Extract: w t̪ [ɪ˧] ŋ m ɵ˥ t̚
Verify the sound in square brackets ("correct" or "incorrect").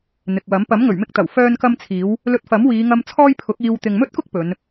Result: incorrect